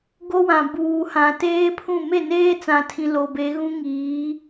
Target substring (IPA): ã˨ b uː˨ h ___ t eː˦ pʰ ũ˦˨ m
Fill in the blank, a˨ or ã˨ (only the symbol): ã˨